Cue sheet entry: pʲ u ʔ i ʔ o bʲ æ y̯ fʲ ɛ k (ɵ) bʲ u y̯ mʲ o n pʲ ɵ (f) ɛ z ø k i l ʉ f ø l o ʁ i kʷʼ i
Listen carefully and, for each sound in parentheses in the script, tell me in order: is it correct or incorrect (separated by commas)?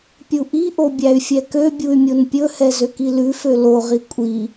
incorrect, incorrect